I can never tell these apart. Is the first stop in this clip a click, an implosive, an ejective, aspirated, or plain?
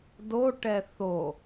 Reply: plain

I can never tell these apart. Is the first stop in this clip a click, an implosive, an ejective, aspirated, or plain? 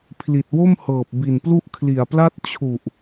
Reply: aspirated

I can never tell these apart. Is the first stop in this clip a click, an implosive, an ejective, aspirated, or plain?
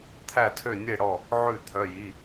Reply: aspirated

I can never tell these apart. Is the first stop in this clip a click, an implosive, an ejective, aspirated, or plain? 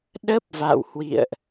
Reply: implosive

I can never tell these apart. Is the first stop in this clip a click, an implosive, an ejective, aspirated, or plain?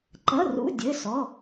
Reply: click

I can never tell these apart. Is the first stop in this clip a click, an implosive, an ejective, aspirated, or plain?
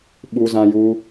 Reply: implosive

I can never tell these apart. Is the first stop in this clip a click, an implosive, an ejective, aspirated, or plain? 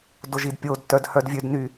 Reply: plain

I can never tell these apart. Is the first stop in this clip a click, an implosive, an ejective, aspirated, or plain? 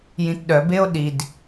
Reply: plain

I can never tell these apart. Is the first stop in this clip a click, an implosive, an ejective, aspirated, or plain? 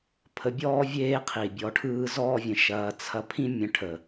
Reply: aspirated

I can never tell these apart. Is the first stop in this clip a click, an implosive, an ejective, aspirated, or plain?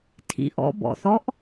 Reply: aspirated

